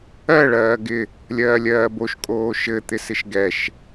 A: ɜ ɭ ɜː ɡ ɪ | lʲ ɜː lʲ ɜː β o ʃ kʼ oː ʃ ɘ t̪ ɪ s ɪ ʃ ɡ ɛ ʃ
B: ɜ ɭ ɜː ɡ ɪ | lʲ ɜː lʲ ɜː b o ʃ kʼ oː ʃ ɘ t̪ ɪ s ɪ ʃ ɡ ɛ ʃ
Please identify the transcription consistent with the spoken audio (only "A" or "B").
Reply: B